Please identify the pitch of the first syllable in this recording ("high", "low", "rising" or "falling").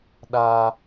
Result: high